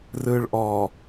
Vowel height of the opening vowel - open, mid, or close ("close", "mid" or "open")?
close